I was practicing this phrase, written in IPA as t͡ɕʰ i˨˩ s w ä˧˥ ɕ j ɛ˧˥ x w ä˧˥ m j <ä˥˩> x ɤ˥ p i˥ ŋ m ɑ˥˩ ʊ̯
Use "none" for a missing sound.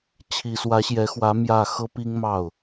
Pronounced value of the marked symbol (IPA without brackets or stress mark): ä˥˩